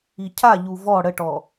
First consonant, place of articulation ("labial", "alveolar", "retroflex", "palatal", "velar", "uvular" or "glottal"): palatal